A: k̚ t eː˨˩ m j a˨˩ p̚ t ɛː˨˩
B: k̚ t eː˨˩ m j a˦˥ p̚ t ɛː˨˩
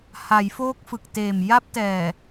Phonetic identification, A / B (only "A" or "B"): B